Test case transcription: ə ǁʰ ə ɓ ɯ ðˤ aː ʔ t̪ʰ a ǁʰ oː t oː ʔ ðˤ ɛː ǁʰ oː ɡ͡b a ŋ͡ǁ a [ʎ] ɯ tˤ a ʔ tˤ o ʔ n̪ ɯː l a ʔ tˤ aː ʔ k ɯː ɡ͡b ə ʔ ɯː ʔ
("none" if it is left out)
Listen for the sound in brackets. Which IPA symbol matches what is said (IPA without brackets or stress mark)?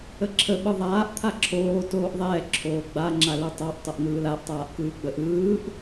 l